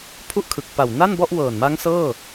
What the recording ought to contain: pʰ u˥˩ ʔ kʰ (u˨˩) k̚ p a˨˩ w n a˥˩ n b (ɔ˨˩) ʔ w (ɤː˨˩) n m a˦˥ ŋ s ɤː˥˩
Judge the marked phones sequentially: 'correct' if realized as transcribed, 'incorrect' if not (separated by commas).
incorrect, incorrect, correct